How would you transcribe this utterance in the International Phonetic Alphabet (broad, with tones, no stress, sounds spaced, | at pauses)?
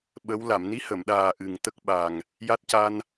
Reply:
ɓ ə˧˥ w l a˨˩˨ m n i˧˥ h ə˨˩˨ m ɗ aː˨˩ ʔ ɨ˨˩ ŋ t̪ ə˦˥ k̚ ɓ a˨˩ ŋ | j a˦˥ t̚ c a˧ n